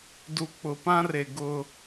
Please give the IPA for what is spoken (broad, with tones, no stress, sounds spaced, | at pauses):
d u˨ k͡p ʊ˨ p ã˦ r e˨ ɡ ʊ˦